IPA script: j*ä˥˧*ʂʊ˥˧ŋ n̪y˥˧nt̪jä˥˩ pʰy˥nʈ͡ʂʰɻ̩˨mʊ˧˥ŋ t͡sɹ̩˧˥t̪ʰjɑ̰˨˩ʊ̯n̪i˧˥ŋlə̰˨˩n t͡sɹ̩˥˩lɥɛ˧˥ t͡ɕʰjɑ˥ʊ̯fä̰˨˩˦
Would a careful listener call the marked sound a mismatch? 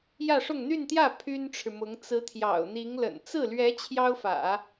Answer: no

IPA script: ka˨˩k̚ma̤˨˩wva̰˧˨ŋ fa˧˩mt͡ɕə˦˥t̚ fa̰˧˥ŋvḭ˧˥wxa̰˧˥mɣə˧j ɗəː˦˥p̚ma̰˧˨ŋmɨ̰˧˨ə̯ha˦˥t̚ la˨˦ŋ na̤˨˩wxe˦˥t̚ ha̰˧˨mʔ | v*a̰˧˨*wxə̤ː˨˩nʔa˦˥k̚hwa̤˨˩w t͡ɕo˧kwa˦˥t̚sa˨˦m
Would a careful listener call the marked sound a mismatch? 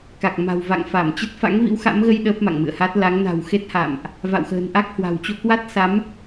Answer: no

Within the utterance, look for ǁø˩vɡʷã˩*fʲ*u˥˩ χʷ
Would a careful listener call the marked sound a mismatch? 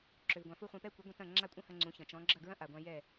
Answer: yes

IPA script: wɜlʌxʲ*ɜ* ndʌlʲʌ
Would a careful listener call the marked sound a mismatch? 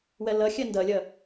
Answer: no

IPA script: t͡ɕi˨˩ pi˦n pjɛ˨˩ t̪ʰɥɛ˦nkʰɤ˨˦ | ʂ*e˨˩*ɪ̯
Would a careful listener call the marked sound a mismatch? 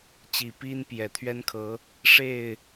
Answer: yes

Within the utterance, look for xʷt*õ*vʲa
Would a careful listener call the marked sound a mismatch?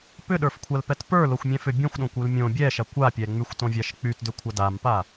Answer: no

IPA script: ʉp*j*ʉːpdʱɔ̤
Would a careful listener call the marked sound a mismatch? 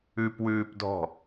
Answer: yes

